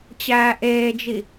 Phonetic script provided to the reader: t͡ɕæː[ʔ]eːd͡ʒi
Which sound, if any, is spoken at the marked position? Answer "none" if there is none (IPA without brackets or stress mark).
ʔ